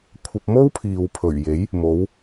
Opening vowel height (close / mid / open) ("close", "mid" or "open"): open